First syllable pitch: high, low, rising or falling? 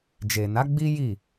low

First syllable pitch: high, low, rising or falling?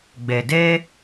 low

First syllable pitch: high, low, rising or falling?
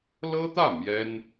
high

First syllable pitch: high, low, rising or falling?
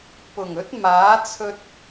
low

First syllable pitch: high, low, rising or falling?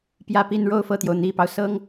falling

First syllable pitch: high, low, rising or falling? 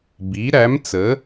rising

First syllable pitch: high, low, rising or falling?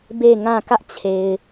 falling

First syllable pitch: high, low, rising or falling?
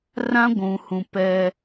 high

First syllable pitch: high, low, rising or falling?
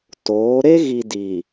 rising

